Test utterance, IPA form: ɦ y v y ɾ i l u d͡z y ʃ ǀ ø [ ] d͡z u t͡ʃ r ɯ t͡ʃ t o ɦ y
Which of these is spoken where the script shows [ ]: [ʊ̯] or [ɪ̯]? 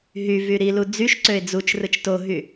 ɪ̯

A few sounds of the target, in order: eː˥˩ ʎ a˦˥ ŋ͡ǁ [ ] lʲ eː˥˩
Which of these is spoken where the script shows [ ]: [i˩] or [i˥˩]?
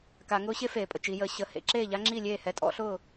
i˥˩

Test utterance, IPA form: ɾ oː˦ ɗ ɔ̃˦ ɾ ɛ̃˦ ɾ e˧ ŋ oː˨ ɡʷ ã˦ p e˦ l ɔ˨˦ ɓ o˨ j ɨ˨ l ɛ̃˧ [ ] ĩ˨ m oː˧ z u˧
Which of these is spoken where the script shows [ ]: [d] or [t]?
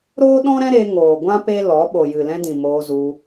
d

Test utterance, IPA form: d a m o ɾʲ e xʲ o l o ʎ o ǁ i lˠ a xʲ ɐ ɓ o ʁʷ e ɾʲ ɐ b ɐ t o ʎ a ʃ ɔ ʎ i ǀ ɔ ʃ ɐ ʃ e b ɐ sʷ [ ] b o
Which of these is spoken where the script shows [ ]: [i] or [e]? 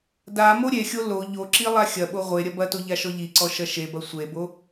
e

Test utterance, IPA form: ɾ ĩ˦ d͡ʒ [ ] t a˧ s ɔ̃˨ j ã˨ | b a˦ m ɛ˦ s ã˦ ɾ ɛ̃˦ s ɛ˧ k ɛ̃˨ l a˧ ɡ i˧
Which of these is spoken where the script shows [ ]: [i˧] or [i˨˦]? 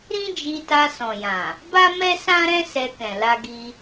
i˧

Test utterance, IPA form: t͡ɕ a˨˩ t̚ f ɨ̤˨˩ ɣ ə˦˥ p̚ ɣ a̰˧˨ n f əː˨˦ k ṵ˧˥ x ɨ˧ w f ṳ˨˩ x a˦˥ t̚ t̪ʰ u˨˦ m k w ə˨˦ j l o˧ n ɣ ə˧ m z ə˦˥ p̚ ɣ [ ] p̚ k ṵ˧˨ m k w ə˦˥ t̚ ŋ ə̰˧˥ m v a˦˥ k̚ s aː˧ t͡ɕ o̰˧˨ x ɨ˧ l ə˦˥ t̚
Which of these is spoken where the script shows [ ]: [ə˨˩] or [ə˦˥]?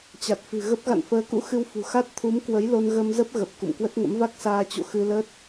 ə˨˩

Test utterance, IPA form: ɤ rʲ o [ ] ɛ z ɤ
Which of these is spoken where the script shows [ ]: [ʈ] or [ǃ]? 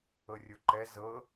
ǃ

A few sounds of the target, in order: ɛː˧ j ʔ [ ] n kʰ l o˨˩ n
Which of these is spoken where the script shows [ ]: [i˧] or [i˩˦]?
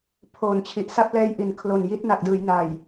i˩˦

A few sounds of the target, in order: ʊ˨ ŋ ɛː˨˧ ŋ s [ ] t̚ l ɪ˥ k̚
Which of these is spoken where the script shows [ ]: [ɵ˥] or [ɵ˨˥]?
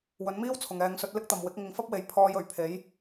ɵ˨˥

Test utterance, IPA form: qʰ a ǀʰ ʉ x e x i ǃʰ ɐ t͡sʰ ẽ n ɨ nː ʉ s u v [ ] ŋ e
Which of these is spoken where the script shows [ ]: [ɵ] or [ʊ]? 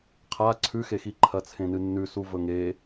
ɵ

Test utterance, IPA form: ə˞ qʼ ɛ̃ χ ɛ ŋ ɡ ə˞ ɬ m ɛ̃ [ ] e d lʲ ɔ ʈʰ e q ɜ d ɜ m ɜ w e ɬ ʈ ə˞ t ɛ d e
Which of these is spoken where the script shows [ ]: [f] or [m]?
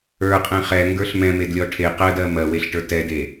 m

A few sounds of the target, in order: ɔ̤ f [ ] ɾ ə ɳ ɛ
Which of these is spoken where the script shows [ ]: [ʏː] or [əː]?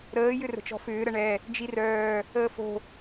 ʏː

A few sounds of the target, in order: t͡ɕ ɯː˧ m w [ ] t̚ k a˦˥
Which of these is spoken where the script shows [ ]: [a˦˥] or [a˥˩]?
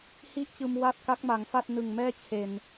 a˥˩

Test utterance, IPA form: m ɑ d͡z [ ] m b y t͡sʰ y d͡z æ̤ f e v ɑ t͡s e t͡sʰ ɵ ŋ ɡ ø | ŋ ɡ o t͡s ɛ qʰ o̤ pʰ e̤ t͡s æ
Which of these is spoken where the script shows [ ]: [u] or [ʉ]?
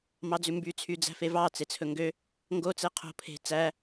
ʉ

